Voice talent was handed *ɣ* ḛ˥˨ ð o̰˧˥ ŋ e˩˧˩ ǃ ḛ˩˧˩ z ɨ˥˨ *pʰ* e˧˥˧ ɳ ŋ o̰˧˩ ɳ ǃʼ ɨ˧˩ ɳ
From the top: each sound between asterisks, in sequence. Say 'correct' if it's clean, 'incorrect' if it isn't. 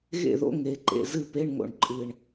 correct, incorrect

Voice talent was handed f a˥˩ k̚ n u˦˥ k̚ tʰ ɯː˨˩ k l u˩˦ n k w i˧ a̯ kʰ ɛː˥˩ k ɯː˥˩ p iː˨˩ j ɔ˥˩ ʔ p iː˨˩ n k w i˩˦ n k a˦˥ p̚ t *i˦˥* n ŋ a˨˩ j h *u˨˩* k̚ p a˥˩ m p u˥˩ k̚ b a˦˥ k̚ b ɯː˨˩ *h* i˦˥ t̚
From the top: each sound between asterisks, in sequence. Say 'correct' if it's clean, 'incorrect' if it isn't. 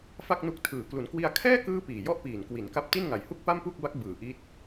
incorrect, incorrect, incorrect

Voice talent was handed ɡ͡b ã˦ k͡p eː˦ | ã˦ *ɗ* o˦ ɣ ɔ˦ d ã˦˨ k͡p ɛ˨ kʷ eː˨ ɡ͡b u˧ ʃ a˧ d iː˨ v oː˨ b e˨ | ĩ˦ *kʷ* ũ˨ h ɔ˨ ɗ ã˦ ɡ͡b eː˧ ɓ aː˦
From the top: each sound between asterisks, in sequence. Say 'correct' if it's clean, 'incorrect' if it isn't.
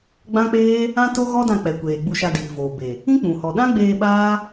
incorrect, incorrect

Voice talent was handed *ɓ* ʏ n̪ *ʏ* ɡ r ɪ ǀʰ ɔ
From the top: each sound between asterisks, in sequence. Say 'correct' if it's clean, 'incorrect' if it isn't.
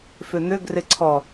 incorrect, correct

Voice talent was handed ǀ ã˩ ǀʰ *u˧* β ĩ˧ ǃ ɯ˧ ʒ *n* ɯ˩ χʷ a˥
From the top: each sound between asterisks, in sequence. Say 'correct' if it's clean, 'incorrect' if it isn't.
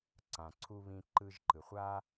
correct, incorrect

